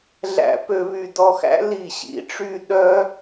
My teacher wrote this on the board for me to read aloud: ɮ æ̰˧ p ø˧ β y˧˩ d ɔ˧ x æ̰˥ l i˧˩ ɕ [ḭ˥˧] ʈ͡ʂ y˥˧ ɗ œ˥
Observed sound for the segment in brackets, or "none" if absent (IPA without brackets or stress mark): ḭ˧